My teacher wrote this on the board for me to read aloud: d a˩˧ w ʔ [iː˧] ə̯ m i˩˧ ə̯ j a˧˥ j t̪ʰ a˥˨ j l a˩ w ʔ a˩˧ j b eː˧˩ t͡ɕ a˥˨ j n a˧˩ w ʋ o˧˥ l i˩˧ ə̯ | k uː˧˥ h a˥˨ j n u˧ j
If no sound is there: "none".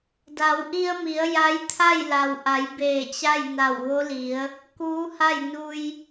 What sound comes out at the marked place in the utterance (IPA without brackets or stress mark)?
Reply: i˧